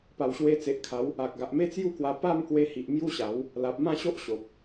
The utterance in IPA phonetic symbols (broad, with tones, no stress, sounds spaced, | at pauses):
p a˨˩ w ɕ w e˧ t͡s e˨ ʔ kʰ a˨˦ w | a˨ k̚ ɡ a˨ ʔ m e˦ t͡s j u˥˧ k w a˧ p a˥˧ m k w e˧ h i˨ ʔ m j u˦ ɕ a˨˦ w | l a˨ p̚ m ã˥˧ ɕ o˦ ʔ ɕ o˨ p̚